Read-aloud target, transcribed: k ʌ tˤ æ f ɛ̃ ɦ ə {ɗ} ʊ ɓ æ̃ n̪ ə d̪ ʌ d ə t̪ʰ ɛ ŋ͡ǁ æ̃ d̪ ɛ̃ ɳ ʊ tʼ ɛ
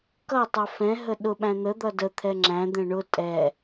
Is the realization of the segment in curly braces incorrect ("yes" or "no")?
no